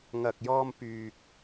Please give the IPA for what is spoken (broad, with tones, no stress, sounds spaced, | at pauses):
ŋ ɐ˨ k̚ j ɔː˧ m p yː˧ k̚